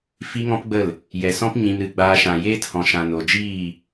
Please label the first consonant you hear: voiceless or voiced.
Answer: voiceless